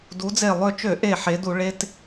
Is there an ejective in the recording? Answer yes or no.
no